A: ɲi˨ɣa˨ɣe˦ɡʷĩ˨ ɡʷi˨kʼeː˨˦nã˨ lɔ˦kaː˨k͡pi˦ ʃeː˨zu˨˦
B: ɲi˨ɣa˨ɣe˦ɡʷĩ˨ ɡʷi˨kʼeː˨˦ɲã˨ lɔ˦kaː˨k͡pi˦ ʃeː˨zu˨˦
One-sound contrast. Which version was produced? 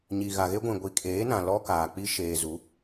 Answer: A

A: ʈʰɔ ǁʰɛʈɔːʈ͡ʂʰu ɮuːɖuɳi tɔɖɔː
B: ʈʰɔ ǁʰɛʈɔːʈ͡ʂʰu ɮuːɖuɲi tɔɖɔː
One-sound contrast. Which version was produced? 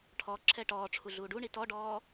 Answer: A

